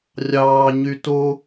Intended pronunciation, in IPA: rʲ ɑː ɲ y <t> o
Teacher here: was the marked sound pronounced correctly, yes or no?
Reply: yes